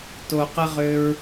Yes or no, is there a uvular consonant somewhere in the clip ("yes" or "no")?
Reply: yes